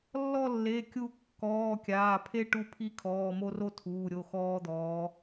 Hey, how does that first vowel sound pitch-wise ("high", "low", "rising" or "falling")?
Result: falling